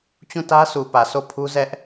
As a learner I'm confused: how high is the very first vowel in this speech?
high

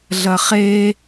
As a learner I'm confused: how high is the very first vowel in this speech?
low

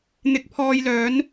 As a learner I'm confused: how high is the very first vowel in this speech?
high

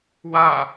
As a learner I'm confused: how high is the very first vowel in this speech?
low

